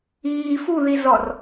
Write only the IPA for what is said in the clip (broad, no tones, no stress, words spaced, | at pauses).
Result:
iːf uðizɔr